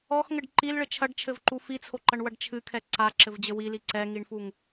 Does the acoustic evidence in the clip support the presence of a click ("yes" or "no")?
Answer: yes